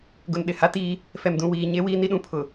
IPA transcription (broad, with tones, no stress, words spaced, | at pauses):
ɡʊ˨nɗɪ˨ha˦ tiː˦ | fɛ˨mdũ˨wiː˨ ɲe˦wiː˦ni˦ɗũ˦ pʰʊ˨